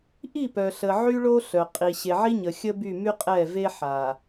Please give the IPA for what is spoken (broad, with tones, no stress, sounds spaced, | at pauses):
ʔ i˦˨ p œ˨ ɬ ə˨ ʕ y˦ ɭ o˦ ɬ œ˨ qʼ i˨ ɕ e˨ ʕ i˦ ɲ ə˨ xʲ ə˦ b y˦˨ m y˦ qʼ ɛ˦˨ v e˦ ħ a˨